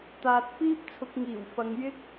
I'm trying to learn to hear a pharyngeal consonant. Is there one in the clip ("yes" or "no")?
no